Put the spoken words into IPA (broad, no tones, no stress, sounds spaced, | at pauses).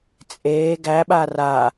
t͡sʼ eː ɡ æ ɓ a r a